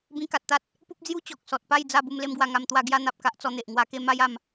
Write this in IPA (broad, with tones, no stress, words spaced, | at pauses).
bĩ˧ka˨t̚t̪a˦t̚ | pu˦p̚d͡zju˦ t͡ɕɔ˨k̚sɔ˨t̚pa˥˧j d͡za˥˧bu˧m le˦mɡwa˧ ŋa˧mt̪wa˥˧ ɡja˦n̪a˨p̚ka˦ʔ t͡sɔ˧n̪e˨ʔ ŋwa˧ke˥˧ma˦j a˧m